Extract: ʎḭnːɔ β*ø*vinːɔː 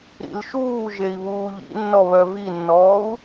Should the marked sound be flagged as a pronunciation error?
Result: yes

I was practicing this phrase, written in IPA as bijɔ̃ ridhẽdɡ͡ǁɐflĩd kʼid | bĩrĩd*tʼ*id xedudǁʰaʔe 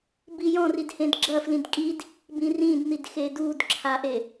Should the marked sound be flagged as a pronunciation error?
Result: yes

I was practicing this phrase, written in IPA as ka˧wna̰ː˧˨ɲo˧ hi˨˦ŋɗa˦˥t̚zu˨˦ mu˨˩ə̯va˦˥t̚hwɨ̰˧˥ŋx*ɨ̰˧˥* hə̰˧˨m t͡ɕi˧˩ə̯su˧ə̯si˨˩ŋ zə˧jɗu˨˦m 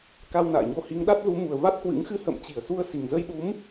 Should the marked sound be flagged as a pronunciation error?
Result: yes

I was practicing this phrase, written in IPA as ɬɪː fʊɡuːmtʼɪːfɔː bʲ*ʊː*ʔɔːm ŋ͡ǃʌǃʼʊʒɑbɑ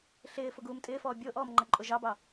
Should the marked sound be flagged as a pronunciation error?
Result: no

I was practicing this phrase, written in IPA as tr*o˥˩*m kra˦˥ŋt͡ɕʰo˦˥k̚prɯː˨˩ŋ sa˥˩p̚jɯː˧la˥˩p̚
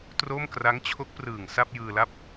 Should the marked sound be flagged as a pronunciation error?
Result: no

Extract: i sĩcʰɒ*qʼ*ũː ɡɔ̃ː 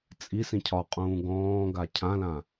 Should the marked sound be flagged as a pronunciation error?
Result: no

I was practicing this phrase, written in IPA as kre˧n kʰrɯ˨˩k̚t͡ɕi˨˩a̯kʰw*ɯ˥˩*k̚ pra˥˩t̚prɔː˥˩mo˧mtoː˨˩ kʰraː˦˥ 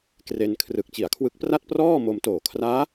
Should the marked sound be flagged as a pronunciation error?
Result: yes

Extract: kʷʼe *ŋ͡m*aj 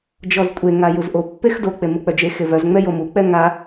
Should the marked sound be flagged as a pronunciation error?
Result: yes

